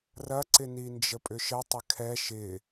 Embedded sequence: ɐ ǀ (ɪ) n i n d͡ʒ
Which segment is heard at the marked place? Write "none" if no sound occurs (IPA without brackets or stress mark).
ɪ